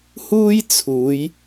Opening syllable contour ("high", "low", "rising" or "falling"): high